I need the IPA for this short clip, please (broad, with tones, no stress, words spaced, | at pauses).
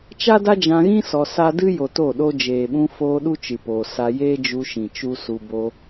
t͡ʃa˦da˦d͡ʒã˧ɣĩ˦ sɔ˧sa˦ dɨ˦ jo˧to˦˨ɗo˦ d͡ʒeː˨ɓũ˧foː˧ ɗu˦t͡ʃɨ˨poː˨ sa˧ jeː˦d͡ʒu˧ʃĩ˨ t͡ʃu˦su˧ bo˧